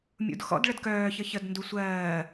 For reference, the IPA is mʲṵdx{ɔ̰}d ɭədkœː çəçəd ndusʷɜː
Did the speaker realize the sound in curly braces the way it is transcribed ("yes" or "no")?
yes